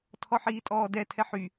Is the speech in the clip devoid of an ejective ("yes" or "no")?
no